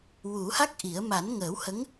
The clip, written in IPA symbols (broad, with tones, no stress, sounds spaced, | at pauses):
w u˨˩˦ h a˦˥ k̚ ʔ i˨˩˦ ə̯ m a˨˩˦ n ŋ əː˨˩˦ w h ə˧˥ ŋ